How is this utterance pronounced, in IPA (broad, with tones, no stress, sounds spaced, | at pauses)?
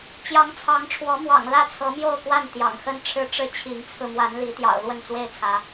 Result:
t͡ɕ j ɑ˨˦ ŋ t͡sʰ ɑ˨˦ ŋ ʈ͡ʂʰ w ɔ˨˦ m w ɑ̰˨˩ ŋ l ä˥˨ t͡sʰ ɤ˨˦ m j o˥˨ ʊ̯ k w a˥˨ n t̪ j ɑ̰˨˩ ŋ x ə˦ n ʈ͡ʂʰ ɻ̩˦ ʈ͡ʂ ɻ̩˦ t͡ɕʰ i˨˦ ŋ t͡sʰ ɹ̩˧ m w a˨˦ n l i˨˦ t̪ j ɑ̰˨˩ ʊ̯ l w ə˥˨ n t͡s w e˥˨ ɪ̯ t͡sʰ ä˨˦